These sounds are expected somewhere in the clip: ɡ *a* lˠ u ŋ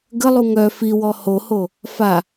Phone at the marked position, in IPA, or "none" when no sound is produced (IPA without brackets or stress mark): ə